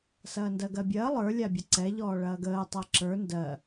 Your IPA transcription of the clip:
s ɐː n d ɜ ɡ ɜ bʲ ɐː lˠ ə˞ lʲ a bʲ ɐ ǀ ɛ ʎ ɔː ɭ ɐː ɡ əː tˤ a ǁ ə˞ n d ɜ

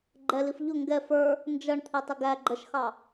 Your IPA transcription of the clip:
ɡ͡ǃ ɛ l i f ʎ ʊ ŋ ɡ ɛ f ə˞ | n d͡ʒ ʌ ɳ t̪ʰ i tˤ ɪ ɡ æ ɡ͡ǃ ə ʃ x ɑ

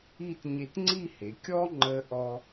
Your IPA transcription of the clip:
i˥˧ t ɲ e˧ t ŋ͡ǀ i˥˧ h e˩˧ kʲ ɔ˥ ŋ͡ǃ ə˧ ʔ ɔ˧

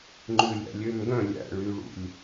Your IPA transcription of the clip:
ŋ͡ǃ ʉ lʲ æ̰ lʲ ø m ɡ œ̃ lʲ æ̰ ɭ y ɭ ṵ lʲ

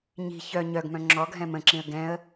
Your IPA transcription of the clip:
ɲ i̤ ç œ ɲ œ ɡ m œ̃ ŋ͡ǁ ɔ ɡʱ ɛ̃ m ə̃ ǁ ĩ ə̯ ɡ ɛ̃ ə̯

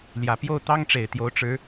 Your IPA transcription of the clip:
l j ä˨˩ p j o˥˨ ʊ̯ t̪ ɑ˦ ŋ ʈ͡ʂ e˨˩ ɪ̯ t̪ j o˨˦ ʊ̯ ʈ͡ʂ ɻ̩˨˦

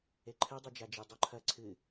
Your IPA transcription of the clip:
e ǃʰ ɨ dˤ ɛ d͡ʒ a d͡ʒ i dˤ o ǃʰ ɐ ǀʰ ɨ

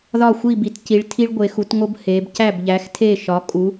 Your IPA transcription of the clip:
ð ɒ˦˨ xʷ i˦˨ b i˨˦ t c i˨˦ ɭ tʰ i˦ ɭ ɡʷ e˨˦ x u˨˦ t ŋ o˦ b h e˨˦ b c æ˦˨ b ʎ æ˨˦ x tʰ e˦˨ ʃ ɒ˨˦ kʼ u˨˦

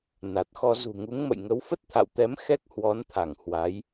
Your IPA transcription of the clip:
n a˨˩ t̚ x ɔ˧ z ṳ˨˩ ŋ u˨˦ ŋ m ə̰˧˨ j ŋ ə˨˦ w f ə˦˥ t̚ t̪ʰ a̰˧˨ w t̪ ɛ˨˦ m x ɛ˦˥ k̚ h w ɔ˨˦ n t̪ʰ a˧˩ ŋ h w a˨˦ j

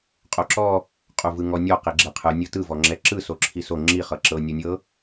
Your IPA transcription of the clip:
qʼ o ǁ ɔ | qʼ u v ɯ ŋ ɔ nʲ ɔ q i ɡ͡ǁ ɛ qʰ ɯ nʲ ɤ t ɯ v ɔ ŋ͡ǁ ɛ ǁ ɯ s o ǁʰ i s o ŋ͡ǁ i χ ɤ ǁ ɤ nʲ o nʲ ɤ

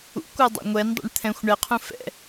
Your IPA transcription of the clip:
ṵ kʷ a dˤ ɛ̰ ŋʷ ɛ n dˤ ɛ̰ ɳ t̪ʰ ɛ̃ xʷ ɳ ɛ qʰ ũ f ɛ̰

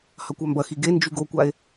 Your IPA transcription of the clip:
h ɐ kʷ a m b ɐ x i ɡ e n d͡ʒ y ɡ o kʷ a e̯

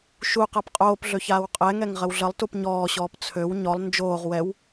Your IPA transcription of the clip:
ʃ u q a p qʼ oː p ɮ ø ç aː w qʼ ɛ ŋ ɛ ŋ ʁ ə w ɮ ə lˠ t u p ɲ ɔː ɕ ɔː p t͡sʰ ø w ɲ ɔ lˠ n d͡ʒ oː ʁ w ɛ w

